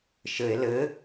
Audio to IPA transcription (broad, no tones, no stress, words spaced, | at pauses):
ʃɘe̯ lɘ